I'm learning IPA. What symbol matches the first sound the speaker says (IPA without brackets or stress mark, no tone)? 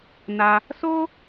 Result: n